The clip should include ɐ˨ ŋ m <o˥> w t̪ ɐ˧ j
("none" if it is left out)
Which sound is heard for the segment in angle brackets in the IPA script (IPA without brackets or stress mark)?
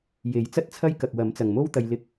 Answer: o˥